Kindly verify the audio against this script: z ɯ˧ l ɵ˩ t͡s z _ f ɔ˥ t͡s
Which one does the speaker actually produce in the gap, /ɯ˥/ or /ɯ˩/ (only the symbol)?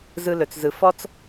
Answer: ɯ˩